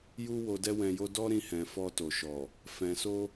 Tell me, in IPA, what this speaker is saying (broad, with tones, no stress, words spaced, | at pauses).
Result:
ju˦ wo˧dɛ˦wɛ̃˧jo˦ dɔ˦ ɾĩ˧hɛ̃˨ fɔ˧to˨ʃɔ˨ | fɛ̃˨so˧